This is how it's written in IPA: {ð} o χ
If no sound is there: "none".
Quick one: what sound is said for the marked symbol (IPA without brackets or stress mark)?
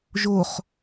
ʒ